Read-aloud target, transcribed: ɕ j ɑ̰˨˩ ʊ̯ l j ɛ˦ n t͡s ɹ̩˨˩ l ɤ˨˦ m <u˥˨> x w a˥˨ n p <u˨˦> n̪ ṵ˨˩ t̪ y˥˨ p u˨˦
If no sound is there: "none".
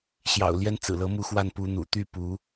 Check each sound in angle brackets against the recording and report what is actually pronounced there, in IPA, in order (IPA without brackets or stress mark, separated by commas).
u˥˨, u˨˦